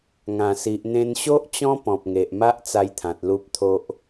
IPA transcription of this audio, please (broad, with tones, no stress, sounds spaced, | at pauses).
ŋ ã˨˩ s i˨ ʔ n̪ ẽ˧ n ɕ o˦ ʔ t͡ɕ ɔ̃˦ p ɔ̃˨ p̚ ŋ e˨ ʔ m a˦ ʔ t͡s a˧ j t̪ʰ ã˨ t̚ l u˦ p̚ t̪ʰ o˦ ʔ